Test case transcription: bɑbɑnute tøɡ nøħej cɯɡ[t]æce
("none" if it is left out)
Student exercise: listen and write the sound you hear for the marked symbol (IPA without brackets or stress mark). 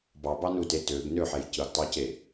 tˤ